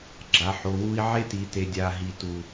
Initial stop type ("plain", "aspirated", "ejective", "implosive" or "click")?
click